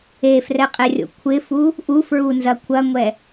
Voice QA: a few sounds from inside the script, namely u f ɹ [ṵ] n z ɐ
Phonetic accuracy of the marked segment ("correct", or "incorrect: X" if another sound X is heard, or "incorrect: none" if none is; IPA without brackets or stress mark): incorrect: u